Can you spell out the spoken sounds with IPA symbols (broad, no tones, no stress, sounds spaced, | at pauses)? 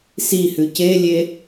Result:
s i h ʉ c e lʲ e